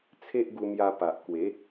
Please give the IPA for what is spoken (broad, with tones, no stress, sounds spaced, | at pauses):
t͡sʰ e˦ ʔ ɡ u˧ m j a˧ p a˨ ʔ k w e˨˦